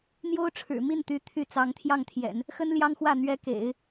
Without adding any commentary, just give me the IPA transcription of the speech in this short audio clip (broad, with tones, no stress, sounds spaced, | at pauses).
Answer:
n̪ j o˥ ʊ̯ ʈ͡ʂʰ ɻ̩˨˩ m i˥˩ n t̪ y˧˥ t̪ʰ y˥ t͡s ɑ˧˥ ŋ t̪ʰ j ɑ˥˩ ŋ t̪ʰ j ɛ̰˨˩˦ n | x ə˥ n l j ɑ˥ ŋ x w ä˥˩ n̪ ɥ ɛ˧˥ k ḛ˨˩˦ ɪ̯